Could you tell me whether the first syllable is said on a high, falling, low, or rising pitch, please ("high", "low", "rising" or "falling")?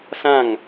falling